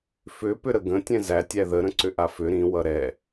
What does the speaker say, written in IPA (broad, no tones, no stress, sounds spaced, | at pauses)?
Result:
f ʏ p ʏ ɾ ə ɡ ə̃ tʲ ɛ̃ z æ tʲ æ ð ə ɾ ə̃ ǀ ʏ ʔ a f ʏ ɾ ĩ w ʌ ɾ ɛ